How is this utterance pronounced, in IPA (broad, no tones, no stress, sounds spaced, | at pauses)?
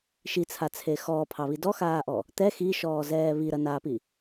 ʃ i t͡sʰ a t͡sʰ e x ɔː pʰ ɑ β i d ɔ x aː ʔ ɔ | t̪ ɛ x i ʃ ɔː z ɛː β i ɾ ɐ n aː p i